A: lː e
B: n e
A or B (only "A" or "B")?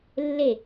A